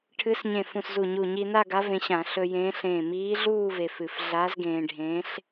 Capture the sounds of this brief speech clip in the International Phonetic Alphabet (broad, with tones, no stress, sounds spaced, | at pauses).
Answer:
ʈʰ ɨ˧˥ s ɲ ẽ˧˩ f ũ˧˩ s z u˧˩ ɲ u˧˩ ɲ i˧ n a˥˧ ɡ a˧˥ v ẽ˧ ɕ ã˧˩˧ ɬ ɵ˧ j ẽː˧˥ ɬ ẽː˧˩ m iː˧˥ ɮ uː˥˧ v e˧ f ɨ˧˩ f ɮ aː˧˥ z ɡ ẽː˧ ɖʱ ẽː˧˥ ɬ